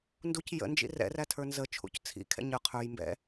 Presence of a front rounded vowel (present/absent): absent